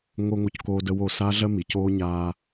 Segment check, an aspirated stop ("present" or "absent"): absent